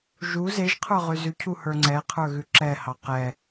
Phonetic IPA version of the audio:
ʒu zeʒqʰə˞ ʁʉzʉcʰu hə˞ŋ͡ǀɛqʰə˞ ɣʉǁɛhɑ qɛ

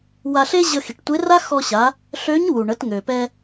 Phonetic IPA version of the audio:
wa˧ɬe˥ ʑə˧xi˩ʈtʷe˧˥ ra˥xɔ˧ɕa˩˧ | ɬø˧˥ɲwu˩ ɳə˩˧tŋø˩pɛ˧

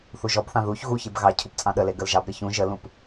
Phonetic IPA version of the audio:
θuʒɔbθɑ̃ ðuç ɣuçeb ɣɑ cʰupt͡sʼɑ̃ɗəle ɡəlʒɑbɾɪ çũ ʒəlũp

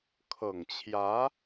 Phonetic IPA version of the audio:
kʰɤ˨˩ŋt͡ɕʰjä˧˥

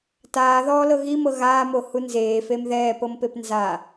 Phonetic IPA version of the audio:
taːðɔːlɤ ɣimɤ ɣaːmohu nzeːfem ðɛːpɤmpep nza

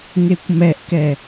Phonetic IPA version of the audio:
ŋekʷmɛʔkɛ

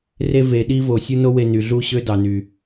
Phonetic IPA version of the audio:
re˧ ve˨ɗi˧vo˨ sʲu˦no˦we˧ ny˨ɮu˦˨ɕø˦dɑ˨ ny˨

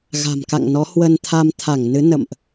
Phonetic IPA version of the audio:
ɣa̤˨˩mka̰˧˨ŋnɔ˨˦ hwə˧nt̪ʰa˧mt̪ʰa˧˩ŋnɨ˨˦ nə̰˧˨mʔ

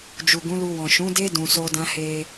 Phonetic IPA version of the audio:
d͡ʒu˨ɡũ˨˦lu˧wɔ̃˨ ʃũ˨˦de˦ dũ˧so˦dã˦ he˧

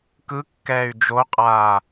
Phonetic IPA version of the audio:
kɯkːɛːy̯ d͡ʒoqʼaː

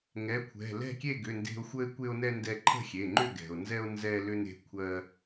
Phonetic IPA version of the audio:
ŋɛ˩˧˩kʷʰɛ̤˩˧˩ lɛ̤˥˨kʲe˥˨ɡʏ˩˧˩nde̤˧o̯ xʷə˧e̯kʷe˧o̯nɛ˧ ndɛ˧ǃʰə̤˥˨xʲe˩˧˩ŋ͡ǃʏ˥˨ ɡɛ̤˩o̯nzɛ˧o̯ nzɛ˧lʏ˧n e̤˩˧˩kʷʰɜ˧

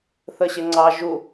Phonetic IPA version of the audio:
θəɕɪŋ͡ǀɑ ʒu

